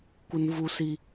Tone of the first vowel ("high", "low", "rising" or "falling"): high